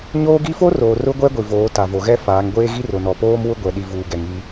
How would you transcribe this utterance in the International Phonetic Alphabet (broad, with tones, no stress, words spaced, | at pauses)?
ɲoː˦ɡi˦ fo˦roː˨ rʊ˦ɡʷɛ˦ɡʷi˨voː˨˦ ta˨vo˨ɣɛ˦ faː˨˦ŋɡʷeː˦ɣi˦ rʊ˨nɔ˨poː˦m wʊ˦ɡʷɛ˨ ɗi˨ vuː˨ɡɛ˨ŋ i˦